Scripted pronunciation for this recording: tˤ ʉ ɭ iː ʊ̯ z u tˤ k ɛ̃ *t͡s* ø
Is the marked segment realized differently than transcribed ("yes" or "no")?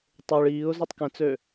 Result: no